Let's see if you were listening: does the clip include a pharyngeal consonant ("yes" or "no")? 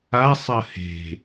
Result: no